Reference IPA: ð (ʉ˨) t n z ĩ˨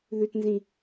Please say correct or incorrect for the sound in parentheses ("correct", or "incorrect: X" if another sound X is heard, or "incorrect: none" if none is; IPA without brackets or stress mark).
correct